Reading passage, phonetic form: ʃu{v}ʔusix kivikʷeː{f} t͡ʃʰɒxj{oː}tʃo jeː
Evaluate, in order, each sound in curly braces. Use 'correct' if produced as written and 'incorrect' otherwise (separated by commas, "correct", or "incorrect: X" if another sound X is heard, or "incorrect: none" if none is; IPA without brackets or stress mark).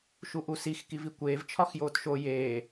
incorrect: none, incorrect: v, correct